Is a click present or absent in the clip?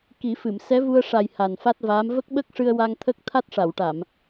absent